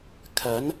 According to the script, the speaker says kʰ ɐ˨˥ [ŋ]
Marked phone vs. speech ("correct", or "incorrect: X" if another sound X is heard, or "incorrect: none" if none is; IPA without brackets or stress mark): incorrect: n